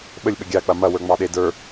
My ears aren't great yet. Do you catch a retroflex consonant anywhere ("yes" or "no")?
no